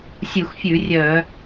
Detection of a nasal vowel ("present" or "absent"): absent